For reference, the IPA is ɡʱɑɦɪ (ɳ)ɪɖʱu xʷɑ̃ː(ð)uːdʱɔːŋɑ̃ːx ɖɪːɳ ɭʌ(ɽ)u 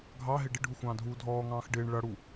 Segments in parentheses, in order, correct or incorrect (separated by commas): incorrect, incorrect, correct